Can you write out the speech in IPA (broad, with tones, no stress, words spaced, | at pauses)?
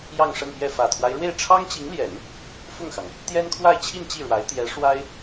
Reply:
jɑ˥˧ŋʂə˥˧npjɛ˥˩ fä˨˩t̪ʰwa˦ɪ̯ɻwe˥˩ɪ̯ ʈ͡ʂʰɑ˥ŋt͡ɕi˧˥ŋljɛ˨˩˦n | fʊ˥˩ŋxɑ˩ŋ | t̪jɛ˥nkʰwa˥˧ɪ̯t͡ɕʰi˥˧n t͡ɕi˥˩ɻwa˧˥ɪ̯ t̪jɛ˧˥ ʂwa˥ɪ̯